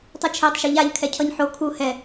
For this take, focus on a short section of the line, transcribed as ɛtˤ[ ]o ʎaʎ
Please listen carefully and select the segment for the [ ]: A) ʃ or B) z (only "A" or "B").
A